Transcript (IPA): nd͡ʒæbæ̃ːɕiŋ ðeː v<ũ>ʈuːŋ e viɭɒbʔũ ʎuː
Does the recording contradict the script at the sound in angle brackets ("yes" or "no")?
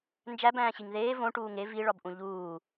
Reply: yes